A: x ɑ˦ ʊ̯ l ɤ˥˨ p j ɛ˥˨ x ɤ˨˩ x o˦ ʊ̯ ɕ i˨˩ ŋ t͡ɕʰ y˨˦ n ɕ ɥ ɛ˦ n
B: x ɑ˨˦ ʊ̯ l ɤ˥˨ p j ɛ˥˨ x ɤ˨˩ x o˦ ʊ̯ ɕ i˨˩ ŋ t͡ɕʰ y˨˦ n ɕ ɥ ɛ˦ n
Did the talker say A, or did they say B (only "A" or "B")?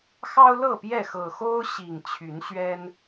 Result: A